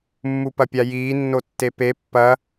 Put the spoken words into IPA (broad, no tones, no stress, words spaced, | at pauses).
mːupɐpʲajiː nːotːepe pːɐ